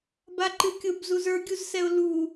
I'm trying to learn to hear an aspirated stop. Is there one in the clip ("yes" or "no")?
no